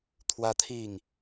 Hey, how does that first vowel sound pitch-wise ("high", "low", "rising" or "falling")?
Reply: high